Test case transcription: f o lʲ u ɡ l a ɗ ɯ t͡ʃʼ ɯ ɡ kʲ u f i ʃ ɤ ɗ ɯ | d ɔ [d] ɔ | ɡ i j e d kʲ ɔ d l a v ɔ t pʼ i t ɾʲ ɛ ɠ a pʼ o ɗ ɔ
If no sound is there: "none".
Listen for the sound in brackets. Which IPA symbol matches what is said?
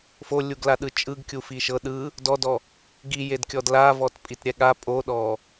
d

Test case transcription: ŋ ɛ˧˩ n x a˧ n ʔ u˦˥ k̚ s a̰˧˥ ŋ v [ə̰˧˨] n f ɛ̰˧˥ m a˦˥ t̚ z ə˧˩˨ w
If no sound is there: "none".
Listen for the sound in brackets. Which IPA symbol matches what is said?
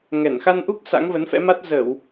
ə˨˦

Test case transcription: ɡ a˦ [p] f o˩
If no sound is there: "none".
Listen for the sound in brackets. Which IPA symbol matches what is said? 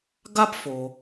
p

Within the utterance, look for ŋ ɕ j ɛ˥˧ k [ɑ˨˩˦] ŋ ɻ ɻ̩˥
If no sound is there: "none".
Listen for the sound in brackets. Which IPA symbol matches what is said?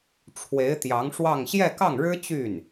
ɑ˥˩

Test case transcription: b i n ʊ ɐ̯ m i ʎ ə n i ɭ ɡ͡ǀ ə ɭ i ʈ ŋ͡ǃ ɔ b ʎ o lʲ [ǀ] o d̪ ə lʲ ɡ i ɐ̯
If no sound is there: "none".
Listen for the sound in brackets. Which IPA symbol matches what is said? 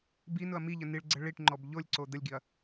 ǀ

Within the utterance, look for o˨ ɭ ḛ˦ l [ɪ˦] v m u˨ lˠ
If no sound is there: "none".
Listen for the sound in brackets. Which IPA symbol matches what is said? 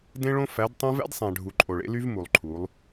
y˦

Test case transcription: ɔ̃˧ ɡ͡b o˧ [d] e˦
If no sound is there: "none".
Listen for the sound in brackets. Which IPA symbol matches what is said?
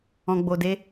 d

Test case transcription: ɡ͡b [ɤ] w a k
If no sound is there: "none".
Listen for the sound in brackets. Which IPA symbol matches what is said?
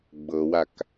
ɤ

